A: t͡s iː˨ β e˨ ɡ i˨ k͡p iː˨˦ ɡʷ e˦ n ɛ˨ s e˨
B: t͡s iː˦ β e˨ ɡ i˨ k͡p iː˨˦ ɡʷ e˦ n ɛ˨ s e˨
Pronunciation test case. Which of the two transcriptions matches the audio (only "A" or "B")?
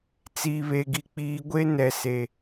A